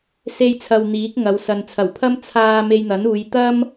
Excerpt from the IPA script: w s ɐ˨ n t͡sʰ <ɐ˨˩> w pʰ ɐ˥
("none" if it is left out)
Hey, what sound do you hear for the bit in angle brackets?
ɐ˨˩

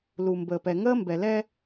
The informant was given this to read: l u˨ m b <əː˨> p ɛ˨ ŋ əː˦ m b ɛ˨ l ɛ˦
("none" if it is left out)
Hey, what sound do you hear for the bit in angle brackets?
əː˨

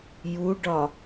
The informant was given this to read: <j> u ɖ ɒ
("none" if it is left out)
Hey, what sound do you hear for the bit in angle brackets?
j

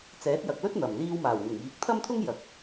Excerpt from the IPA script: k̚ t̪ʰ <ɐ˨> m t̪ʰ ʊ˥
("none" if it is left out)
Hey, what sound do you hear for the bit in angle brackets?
ɐ˥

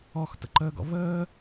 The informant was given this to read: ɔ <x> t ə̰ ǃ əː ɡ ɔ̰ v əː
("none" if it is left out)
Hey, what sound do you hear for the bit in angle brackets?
x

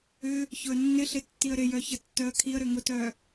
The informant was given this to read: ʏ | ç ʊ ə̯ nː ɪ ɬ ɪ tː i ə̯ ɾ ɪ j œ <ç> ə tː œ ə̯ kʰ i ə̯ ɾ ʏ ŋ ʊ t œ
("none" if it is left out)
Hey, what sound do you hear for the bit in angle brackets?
ç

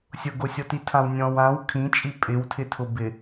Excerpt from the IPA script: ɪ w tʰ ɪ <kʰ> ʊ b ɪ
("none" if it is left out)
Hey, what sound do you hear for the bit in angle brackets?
tʰ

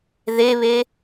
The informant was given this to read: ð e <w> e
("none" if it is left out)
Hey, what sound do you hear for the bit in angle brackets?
β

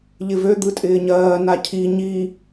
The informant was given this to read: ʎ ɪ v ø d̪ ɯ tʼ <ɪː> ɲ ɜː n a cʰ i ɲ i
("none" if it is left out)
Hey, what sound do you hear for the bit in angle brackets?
ɪː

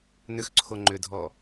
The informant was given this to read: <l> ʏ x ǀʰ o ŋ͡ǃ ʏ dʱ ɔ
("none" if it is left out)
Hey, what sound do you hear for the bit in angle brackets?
n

